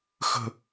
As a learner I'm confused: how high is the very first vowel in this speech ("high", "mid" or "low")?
mid